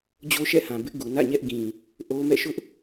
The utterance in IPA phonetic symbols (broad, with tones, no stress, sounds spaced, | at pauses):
d͡ʑ o˦ ʃ ɛ̰˦˨ h ã˨ b ɪ˦ ʔ ɡ u˨ n ä̰˦˨ ɲ ɛ˦ ʔ ɡ ĩ˨ | ʔ o˦ m ɛ̰˦˨ ʃ ʊ˦ ʔ